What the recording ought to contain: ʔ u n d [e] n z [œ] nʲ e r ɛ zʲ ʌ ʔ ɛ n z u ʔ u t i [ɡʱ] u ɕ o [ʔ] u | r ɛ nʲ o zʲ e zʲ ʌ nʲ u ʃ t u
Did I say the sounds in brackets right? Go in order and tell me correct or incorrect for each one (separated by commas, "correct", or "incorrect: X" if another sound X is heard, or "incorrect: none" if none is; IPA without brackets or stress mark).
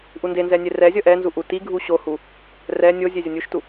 correct, incorrect: ɛ, correct, incorrect: h